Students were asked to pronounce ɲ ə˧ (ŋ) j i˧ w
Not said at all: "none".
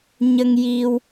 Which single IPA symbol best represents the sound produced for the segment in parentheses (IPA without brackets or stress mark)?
ŋ